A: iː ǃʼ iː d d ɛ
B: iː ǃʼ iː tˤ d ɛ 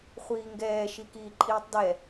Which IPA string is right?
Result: B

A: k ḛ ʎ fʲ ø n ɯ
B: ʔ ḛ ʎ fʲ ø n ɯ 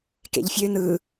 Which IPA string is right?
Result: A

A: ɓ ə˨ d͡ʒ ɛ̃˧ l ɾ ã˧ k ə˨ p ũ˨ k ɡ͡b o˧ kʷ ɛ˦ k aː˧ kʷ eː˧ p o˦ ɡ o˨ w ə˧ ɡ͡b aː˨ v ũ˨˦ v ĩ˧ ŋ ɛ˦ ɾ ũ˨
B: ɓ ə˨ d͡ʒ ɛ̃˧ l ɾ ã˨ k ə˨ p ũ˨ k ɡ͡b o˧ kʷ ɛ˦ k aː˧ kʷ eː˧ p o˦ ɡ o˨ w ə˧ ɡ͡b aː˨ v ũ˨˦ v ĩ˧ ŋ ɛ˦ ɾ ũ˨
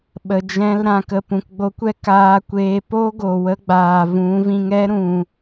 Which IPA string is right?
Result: B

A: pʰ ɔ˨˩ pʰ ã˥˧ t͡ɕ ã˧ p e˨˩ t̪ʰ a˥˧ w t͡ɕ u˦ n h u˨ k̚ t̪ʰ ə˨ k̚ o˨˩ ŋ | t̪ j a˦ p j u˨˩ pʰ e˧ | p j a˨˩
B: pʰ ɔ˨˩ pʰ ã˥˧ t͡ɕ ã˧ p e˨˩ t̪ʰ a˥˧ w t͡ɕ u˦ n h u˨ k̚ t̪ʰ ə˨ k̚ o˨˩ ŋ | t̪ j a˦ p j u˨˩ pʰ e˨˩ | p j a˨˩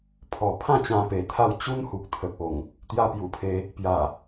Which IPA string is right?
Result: A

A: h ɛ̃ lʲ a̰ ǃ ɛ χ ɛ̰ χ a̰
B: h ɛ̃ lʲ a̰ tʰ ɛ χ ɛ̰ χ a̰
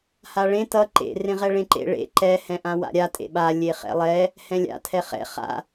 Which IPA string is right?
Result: B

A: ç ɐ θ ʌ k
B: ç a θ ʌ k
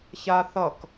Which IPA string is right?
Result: B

